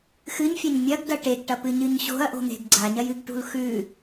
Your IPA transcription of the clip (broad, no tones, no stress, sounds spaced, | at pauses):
x ɨ ɲ fʲ ɐ ɲ mʲ ɐ ɡ d ɐ ʈ e ɡ ʈ ɐ p ɨ ɲ ɨ ɲ ɕ o̤ ɐ̯ ʔ o̤ n̪ e̤ ɡ ɡ͡ǀ a ɲ ɐ j ɨ ɡ ʈ ṳ l x ʉ